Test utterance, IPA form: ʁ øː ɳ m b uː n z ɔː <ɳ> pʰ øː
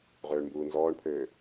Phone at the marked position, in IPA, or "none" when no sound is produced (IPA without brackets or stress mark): ɳ